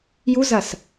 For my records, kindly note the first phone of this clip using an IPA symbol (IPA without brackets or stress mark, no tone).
j